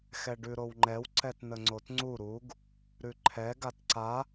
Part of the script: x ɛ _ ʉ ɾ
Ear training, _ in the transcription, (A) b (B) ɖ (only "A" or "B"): B